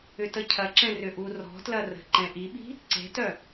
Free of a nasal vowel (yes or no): no